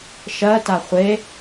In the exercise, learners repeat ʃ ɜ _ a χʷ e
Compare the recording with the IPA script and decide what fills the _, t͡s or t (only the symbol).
t